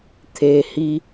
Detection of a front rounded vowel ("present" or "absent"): absent